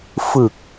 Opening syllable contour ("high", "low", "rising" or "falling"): low